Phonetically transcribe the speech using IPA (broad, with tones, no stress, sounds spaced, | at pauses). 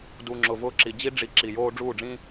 d u˨ ŋ͡ǁ ʊ˨ v ʊː˧ ǁ i˨ d͡ʑ i˦ ɖ͡ʐ i˧ ǁ i˨ j oː˦ ɖ͡ʐ uː˦˨ ɖ͡ʐ ĩː˦